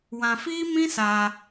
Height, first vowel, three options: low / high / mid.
low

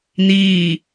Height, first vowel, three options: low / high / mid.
high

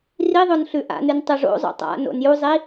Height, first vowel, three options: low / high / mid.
high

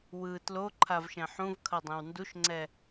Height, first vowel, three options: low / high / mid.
high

